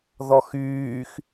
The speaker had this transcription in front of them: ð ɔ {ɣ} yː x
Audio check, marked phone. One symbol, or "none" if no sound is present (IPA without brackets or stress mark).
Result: x